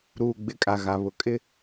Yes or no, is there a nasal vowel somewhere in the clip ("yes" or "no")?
no